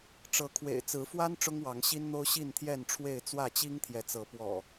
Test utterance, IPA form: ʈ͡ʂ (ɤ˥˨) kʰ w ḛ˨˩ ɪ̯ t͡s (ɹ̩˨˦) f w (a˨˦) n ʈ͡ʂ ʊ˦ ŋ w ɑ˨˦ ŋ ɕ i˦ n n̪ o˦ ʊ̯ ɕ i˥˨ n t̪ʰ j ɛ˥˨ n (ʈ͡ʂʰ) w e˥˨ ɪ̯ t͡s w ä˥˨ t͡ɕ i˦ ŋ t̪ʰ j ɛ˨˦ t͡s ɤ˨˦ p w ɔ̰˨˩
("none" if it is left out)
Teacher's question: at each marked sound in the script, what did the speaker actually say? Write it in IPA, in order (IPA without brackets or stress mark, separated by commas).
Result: ɤ˨˦, ɹ̩˨˦, a˦, ʈ͡ʂʰ